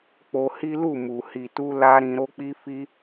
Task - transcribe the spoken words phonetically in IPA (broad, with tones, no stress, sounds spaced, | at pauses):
k͡p o˧ h i˦ l u˦˨ m u˨ h i˨ t u˧ l a˦ ɾ ĩ˧ ɾ o˦ k͡p i˦ f i˦